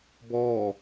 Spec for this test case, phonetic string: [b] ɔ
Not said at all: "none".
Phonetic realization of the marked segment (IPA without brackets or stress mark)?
b